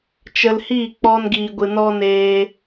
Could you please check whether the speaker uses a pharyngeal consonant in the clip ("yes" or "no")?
no